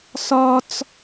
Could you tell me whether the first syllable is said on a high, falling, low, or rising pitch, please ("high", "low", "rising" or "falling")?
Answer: high